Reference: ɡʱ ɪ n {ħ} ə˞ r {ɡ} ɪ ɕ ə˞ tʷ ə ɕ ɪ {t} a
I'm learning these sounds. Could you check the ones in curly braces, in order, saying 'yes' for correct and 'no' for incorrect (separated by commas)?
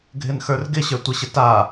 no, yes, yes